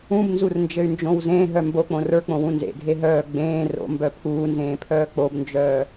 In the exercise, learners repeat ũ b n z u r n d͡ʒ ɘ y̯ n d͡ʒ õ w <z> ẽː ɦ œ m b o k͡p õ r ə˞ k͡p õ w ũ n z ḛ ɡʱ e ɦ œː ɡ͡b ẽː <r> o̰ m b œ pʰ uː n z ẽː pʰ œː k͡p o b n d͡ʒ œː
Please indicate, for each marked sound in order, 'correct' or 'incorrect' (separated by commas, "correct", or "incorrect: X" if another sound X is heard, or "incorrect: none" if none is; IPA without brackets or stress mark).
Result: correct, correct